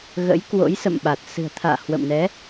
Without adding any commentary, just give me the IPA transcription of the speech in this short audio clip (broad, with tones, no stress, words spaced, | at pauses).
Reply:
ɣə̰˧˥jkwo̰˧˥jsə̰˧˨mɓa˨˩t̚ sɨ̤˨˩ə̯t̪ʰa̰ː˧˨ hwə̰˧˨mnɛ˨˦